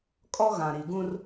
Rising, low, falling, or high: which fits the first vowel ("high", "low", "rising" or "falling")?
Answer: high